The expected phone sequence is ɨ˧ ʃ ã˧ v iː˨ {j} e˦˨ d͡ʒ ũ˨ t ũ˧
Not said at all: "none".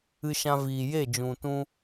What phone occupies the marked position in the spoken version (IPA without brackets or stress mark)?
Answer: j